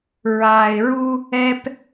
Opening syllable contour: low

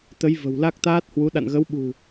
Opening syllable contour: rising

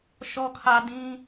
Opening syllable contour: low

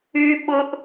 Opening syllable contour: high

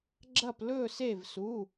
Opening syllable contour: falling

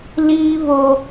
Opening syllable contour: high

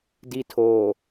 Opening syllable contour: low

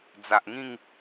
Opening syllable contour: low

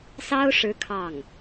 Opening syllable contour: high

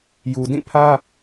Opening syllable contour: low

